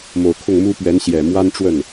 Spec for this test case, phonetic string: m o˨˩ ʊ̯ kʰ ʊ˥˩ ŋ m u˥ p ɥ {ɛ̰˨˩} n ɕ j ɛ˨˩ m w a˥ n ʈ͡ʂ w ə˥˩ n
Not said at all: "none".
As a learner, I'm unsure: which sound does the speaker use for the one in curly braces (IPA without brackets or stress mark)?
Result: ɛ˧˥